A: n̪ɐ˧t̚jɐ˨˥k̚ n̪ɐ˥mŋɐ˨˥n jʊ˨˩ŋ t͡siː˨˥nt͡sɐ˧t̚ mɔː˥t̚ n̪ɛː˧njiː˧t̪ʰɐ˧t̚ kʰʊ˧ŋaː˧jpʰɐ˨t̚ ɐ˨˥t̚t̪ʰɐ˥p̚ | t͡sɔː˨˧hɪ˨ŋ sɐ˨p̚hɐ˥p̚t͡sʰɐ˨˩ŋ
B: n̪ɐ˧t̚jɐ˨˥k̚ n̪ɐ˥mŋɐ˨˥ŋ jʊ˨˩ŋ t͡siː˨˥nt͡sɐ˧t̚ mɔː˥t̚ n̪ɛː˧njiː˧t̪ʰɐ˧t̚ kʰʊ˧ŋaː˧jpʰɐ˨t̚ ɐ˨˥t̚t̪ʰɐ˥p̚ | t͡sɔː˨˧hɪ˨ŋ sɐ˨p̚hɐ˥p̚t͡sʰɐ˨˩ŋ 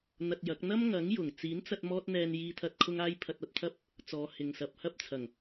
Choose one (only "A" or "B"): B